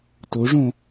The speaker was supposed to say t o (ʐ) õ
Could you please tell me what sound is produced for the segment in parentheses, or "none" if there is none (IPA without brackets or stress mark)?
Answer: ʐ